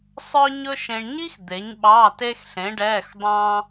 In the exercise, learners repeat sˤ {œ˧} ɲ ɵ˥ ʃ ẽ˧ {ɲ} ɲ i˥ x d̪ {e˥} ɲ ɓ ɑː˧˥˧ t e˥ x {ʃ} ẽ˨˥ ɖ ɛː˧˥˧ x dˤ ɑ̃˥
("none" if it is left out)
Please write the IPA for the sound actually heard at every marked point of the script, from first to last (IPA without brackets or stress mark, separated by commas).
œ˥, ɳ, e˨˥, ɬ